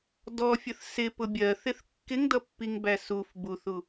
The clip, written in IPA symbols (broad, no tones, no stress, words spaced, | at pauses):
dɔfʲəθ sɪpʊ bʲɜθɪθ kːɪŋdʌpːiŋbæ suf buθu